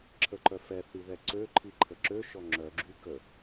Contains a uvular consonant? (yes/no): no